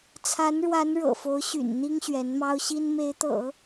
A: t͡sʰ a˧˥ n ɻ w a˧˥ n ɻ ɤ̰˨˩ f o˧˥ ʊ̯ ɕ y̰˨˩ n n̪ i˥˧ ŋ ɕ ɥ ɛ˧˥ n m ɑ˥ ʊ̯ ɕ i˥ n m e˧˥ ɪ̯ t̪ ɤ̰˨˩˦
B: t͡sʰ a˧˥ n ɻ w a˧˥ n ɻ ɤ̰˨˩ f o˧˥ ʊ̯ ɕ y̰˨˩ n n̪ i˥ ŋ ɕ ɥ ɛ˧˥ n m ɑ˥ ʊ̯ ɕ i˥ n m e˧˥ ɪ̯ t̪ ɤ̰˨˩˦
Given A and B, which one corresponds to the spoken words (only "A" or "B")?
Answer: B